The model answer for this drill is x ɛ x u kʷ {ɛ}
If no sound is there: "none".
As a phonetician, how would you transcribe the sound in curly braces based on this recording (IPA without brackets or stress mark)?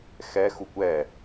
ɛ